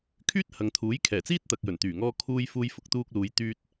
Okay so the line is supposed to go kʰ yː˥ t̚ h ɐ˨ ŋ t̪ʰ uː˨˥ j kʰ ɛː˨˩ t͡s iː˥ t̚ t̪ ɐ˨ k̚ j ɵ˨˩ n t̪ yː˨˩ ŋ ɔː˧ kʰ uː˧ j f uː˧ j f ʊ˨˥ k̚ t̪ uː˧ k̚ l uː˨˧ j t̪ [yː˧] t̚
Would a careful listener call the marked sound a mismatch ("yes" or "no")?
no